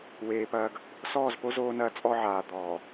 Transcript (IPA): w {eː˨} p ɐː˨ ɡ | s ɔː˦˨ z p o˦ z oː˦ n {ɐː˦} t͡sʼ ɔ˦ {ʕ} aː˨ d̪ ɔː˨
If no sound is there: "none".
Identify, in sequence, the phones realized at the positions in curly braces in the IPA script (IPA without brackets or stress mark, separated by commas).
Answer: eː˨, ɐː˦, ʕ